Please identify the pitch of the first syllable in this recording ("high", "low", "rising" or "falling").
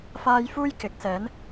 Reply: high